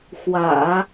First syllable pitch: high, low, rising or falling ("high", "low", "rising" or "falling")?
low